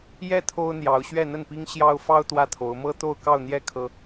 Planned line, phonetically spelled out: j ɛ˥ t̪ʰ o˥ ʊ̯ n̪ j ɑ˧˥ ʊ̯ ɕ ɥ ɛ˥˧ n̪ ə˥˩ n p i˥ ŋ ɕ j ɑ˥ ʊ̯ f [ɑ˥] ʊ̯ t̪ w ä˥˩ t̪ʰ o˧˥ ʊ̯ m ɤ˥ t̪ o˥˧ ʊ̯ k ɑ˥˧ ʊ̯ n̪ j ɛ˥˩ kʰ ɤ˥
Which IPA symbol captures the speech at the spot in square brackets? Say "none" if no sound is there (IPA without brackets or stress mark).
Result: ɑ˥